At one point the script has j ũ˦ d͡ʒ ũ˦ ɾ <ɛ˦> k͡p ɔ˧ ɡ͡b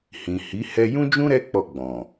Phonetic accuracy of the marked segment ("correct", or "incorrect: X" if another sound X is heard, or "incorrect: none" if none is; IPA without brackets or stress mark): correct